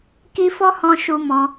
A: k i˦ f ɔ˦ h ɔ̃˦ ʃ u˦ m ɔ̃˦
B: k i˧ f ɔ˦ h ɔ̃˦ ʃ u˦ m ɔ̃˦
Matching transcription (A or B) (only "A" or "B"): A